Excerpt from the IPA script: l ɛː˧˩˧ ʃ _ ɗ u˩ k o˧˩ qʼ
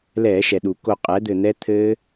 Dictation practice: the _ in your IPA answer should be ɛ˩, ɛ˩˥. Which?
ɛ˩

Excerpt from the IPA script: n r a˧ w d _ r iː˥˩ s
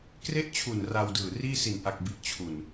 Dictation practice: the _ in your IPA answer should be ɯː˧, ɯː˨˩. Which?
ɯː˨˩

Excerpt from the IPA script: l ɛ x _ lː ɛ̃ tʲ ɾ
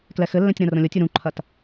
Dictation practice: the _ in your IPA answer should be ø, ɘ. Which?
ɘ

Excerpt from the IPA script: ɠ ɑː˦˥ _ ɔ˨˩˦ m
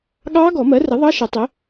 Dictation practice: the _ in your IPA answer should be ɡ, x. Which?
ɡ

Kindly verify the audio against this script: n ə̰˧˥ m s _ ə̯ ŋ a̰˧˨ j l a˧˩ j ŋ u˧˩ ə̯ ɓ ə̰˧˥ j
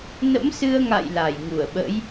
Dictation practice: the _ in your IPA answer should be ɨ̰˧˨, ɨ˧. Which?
ɨ˧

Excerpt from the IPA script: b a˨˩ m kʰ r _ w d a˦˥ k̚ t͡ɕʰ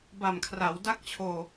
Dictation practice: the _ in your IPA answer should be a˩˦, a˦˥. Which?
a˩˦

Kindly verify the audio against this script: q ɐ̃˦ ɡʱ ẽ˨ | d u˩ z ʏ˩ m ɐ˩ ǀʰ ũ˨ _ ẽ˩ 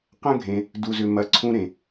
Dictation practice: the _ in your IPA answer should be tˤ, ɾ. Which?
ɾ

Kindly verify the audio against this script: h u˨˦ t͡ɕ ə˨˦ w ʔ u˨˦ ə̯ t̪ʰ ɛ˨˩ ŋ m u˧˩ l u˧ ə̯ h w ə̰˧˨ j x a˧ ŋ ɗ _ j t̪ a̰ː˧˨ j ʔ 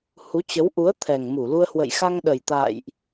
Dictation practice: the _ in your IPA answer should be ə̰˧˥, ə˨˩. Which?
ə˨˩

